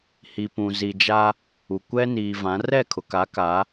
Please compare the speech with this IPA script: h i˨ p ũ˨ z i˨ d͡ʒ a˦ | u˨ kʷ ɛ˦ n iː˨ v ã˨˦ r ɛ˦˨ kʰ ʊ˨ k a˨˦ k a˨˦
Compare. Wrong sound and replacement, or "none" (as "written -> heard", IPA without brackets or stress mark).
none